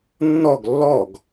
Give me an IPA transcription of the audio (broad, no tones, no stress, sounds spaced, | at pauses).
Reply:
nː ɔ ɡ lː ɔ ɡ